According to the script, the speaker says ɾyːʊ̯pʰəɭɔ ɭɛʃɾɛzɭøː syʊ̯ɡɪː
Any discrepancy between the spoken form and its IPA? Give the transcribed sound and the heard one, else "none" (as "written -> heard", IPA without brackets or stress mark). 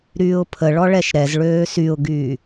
ɪː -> yː